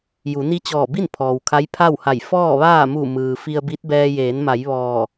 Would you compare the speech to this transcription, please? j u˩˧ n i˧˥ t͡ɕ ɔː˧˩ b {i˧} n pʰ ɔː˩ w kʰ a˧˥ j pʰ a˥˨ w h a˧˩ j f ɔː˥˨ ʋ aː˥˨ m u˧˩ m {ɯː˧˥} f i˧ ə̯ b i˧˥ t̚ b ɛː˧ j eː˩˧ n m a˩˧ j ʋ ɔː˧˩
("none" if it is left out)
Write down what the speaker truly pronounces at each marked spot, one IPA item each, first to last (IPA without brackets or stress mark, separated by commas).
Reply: i˥˨, ɯː˩